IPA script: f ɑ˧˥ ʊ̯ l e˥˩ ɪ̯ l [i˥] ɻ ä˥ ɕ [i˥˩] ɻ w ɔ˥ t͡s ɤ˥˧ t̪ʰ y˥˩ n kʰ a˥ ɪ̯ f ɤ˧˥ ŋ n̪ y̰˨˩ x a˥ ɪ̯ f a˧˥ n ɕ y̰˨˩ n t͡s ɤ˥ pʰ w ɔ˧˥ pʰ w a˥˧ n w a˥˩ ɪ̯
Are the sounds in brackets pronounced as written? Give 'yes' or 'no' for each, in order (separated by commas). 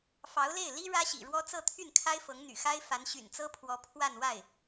yes, no